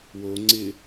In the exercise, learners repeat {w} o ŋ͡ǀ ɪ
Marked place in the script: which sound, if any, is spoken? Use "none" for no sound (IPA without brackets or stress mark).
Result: w